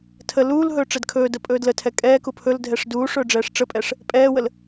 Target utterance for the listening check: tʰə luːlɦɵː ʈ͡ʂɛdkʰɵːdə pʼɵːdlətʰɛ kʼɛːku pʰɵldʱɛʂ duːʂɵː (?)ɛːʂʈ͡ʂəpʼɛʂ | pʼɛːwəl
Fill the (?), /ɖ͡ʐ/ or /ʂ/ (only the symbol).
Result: ɖ͡ʐ